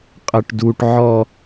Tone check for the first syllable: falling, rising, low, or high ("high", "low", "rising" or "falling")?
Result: high